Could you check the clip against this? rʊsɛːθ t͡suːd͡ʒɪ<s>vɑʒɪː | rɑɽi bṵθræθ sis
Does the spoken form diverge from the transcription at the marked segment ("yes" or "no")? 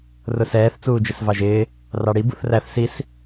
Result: no